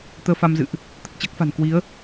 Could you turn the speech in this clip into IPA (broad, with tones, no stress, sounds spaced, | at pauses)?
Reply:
t̪ əː˧ f a˧ m z ɨ̰˧˨ ʔ | t̪ ə˨˩ t̚ t͡ɕ əː˦˥ k̚ f a̤˨˩ n k w i˨˦ ə̯